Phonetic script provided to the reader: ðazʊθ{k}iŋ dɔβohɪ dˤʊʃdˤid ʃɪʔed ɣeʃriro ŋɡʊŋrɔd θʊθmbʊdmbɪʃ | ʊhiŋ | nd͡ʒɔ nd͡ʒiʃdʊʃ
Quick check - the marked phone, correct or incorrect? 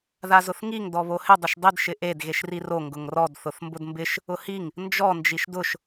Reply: incorrect: ŋ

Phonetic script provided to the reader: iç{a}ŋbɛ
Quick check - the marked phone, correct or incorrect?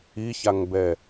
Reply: correct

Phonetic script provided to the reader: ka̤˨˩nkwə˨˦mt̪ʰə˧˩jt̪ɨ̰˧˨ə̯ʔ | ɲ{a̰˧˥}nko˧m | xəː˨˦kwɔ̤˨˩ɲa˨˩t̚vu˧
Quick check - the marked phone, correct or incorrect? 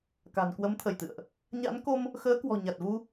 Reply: correct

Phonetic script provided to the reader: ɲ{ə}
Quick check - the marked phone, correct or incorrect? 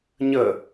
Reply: correct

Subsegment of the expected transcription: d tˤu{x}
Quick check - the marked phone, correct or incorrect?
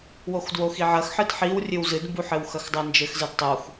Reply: correct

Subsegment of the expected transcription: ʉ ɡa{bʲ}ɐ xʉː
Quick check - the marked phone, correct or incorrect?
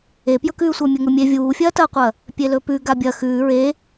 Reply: correct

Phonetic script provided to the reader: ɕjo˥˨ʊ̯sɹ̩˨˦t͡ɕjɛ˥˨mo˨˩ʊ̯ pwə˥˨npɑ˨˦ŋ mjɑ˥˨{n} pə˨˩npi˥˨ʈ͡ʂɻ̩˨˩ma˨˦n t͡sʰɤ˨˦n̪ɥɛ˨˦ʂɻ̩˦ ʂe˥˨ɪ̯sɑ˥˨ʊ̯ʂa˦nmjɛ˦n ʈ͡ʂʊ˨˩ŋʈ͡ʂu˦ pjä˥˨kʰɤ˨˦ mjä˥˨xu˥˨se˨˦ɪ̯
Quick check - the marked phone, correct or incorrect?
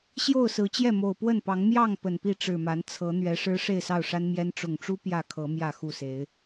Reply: incorrect: ŋ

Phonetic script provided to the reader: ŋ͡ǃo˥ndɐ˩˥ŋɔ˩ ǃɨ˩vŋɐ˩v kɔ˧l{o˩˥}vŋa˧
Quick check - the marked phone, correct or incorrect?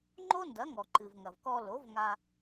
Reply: correct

